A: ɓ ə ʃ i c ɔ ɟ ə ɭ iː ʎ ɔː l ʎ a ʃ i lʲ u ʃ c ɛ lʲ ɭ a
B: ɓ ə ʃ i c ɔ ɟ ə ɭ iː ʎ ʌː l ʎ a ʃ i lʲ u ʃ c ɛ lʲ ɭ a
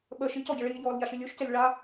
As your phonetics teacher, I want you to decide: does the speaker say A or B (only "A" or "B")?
A